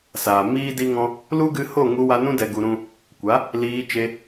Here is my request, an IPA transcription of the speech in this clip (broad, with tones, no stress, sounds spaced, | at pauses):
s aː˨ m iː˦ d i˦ ŋ ɔ̃˦ | l u˦ ɡ ɨ˧ h o˦˨ ŋ u˧ w a˧ n ũ˦ d ɛ˧ ɡ u˧ ɾ ũ˦ | kʷ a˨˦ | l iː˧ t͡ʃ e˧